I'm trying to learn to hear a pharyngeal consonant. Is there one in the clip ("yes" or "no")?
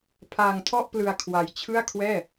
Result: no